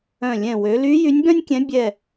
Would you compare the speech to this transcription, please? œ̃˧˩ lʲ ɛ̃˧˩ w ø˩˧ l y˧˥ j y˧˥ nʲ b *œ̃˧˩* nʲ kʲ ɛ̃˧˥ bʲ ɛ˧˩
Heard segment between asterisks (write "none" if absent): œ̃˥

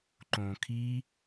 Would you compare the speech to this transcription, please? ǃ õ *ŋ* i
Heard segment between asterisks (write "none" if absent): kʰ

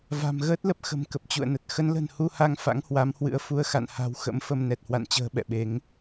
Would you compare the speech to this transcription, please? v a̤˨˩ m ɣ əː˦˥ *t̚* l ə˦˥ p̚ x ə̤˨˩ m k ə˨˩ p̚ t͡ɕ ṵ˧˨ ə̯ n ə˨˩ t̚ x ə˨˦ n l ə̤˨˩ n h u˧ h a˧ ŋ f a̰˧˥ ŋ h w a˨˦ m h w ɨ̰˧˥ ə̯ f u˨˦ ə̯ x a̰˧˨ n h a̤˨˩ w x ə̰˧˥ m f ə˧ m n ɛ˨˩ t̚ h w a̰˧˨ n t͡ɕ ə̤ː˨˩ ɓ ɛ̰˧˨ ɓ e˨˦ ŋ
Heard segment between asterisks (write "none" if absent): t̚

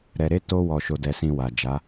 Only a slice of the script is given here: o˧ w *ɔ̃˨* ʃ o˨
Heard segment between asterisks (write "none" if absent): ɔ˨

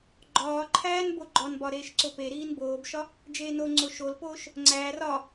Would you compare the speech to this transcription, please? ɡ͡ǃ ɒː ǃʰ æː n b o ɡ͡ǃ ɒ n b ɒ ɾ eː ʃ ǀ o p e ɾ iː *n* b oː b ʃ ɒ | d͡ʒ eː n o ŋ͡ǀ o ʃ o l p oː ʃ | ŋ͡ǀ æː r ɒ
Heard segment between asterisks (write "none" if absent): n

